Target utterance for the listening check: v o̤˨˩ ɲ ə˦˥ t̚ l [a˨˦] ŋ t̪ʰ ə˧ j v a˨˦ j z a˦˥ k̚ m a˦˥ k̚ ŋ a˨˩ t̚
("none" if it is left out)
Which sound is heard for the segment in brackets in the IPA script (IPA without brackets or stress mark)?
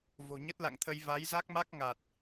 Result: a̰˧˨